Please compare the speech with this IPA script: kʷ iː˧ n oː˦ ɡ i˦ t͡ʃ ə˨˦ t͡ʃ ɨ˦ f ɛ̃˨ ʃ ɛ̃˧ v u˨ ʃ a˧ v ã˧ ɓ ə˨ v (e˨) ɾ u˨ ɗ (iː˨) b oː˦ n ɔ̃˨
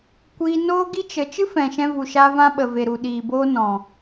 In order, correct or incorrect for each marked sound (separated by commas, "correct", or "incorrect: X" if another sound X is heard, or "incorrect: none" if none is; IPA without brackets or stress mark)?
correct, correct